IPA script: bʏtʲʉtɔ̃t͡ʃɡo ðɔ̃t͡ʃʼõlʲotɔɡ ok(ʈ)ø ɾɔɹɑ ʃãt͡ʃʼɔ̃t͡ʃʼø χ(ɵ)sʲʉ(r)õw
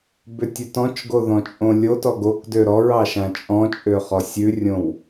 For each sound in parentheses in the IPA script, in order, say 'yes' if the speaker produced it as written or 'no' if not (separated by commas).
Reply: no, no, no